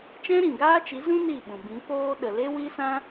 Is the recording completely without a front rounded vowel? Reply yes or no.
yes